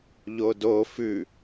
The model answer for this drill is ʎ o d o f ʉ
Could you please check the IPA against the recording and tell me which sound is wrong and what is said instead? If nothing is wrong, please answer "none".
none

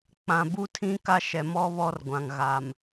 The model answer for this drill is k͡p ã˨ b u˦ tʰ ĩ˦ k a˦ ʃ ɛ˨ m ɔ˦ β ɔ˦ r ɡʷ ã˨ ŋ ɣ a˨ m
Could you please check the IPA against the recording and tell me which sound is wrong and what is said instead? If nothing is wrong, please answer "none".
none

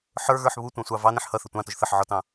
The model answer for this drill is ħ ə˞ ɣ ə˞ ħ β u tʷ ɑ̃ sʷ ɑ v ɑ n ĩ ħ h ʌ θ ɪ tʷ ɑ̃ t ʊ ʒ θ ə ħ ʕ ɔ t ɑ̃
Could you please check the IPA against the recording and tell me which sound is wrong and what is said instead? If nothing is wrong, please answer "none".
none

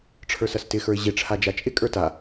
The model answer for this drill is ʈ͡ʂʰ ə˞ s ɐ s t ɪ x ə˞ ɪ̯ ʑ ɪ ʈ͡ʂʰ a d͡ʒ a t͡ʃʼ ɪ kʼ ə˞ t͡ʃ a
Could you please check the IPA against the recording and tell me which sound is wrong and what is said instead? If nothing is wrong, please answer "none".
t͡ʃ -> t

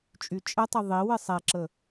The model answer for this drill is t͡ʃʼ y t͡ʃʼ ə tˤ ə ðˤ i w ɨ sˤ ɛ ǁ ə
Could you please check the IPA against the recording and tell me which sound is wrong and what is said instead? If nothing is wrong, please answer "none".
none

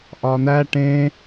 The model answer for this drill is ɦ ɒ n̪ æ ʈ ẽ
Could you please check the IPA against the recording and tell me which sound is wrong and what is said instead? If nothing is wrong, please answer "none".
ɦ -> ʔ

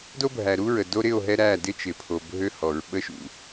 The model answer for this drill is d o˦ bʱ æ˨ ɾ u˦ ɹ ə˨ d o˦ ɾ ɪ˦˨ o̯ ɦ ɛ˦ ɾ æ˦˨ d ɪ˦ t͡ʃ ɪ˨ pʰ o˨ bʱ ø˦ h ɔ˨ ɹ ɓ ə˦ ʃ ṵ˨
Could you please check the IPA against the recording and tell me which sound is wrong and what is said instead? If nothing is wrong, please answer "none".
none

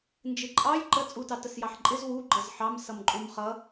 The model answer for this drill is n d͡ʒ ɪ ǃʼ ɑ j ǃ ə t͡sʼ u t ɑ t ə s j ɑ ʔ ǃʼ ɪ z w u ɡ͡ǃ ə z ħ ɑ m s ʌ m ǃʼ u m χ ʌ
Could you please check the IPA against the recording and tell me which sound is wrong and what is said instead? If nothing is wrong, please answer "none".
ʔ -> ħ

